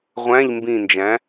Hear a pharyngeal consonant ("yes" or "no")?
no